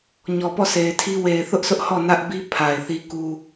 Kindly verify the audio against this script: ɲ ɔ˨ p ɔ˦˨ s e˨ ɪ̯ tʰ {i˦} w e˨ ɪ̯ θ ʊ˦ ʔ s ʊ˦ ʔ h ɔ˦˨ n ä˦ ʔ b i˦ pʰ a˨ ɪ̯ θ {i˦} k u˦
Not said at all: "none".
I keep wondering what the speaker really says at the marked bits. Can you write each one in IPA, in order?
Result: i˦, i˦

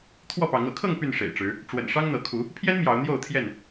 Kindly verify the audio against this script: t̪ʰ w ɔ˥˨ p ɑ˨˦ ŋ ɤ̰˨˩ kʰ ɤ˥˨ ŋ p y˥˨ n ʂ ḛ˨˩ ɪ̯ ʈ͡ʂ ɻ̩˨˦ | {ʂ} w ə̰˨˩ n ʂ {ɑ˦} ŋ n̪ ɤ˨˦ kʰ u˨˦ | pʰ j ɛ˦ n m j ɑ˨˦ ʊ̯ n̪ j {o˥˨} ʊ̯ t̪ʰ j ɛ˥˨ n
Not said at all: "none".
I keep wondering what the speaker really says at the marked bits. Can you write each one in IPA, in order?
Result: ʈ͡ʂ, ɑ˦, o˥˨

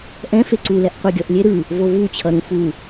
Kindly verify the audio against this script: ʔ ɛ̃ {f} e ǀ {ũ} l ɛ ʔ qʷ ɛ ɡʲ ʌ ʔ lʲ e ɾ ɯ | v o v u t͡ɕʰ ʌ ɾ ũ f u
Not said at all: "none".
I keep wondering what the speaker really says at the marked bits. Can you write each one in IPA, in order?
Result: f, u

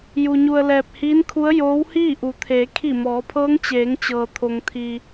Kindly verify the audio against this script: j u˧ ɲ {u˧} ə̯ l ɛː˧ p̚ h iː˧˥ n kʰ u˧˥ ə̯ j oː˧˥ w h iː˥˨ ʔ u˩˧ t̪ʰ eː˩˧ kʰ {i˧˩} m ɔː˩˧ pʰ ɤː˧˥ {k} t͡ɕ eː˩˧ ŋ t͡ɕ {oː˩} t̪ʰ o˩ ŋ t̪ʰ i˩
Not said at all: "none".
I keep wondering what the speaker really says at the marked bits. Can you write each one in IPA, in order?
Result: u˧, i˧˩, ŋ, ɤː˩

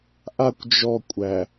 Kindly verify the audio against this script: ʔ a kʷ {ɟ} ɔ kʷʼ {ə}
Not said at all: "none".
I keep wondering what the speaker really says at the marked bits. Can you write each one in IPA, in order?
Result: d͡ʒ, æ

